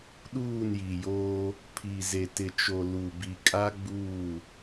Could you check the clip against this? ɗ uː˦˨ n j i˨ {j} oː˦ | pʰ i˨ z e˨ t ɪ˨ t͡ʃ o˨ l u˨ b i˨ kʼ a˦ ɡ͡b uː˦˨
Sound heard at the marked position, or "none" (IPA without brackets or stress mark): j